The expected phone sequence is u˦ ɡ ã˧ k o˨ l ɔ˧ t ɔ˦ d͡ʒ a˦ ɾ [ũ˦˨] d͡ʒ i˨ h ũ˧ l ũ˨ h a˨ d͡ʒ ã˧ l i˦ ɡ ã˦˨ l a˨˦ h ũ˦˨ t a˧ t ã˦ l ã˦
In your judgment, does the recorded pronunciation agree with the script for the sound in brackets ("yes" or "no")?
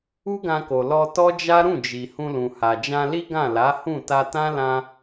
yes